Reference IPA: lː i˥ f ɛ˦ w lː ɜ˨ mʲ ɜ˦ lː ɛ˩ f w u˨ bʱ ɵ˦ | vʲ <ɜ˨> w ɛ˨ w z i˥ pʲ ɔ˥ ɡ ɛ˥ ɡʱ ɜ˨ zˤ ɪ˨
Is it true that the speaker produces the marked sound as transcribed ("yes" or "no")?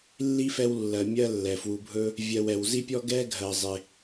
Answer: yes